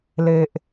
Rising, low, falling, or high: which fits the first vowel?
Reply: low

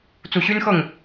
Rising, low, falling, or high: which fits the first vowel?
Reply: low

